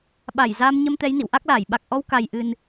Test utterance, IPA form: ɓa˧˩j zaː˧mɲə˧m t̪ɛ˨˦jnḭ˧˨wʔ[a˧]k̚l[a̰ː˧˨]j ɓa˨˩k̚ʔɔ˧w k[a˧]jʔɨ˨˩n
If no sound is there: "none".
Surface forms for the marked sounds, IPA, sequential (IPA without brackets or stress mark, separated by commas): a˦˥, aː˧˩, a˨˩